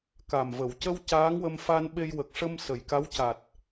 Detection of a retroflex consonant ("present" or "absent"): present